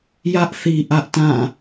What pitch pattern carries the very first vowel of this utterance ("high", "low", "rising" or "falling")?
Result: high